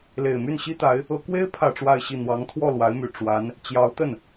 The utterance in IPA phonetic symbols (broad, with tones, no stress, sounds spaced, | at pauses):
l e˨˩ ɪ̯ m y˥˩ n ɕ i˥ t̪ a˧˥ ɪ̯ | ɤ˧˥ k w e˥ ɪ̯ pʰ ä˥˧ ʈ͡ʂ w a˥˧ ɪ̯ ɕ i˥˩ n̪ w ɑ˧˥ ŋ t̪ʰ w ɔ˥˩ l w a˧˥ ɪ̯ m y˨˩ ʈ͡ʂ w a˧˥ n | t͡ɕ j ɑ˧˥ ʊ̯ t̪ ə˥˩ n